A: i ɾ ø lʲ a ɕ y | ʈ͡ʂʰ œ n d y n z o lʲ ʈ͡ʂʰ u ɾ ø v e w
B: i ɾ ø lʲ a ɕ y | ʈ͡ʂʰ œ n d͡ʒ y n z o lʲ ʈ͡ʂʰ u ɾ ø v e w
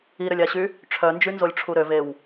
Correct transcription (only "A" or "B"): B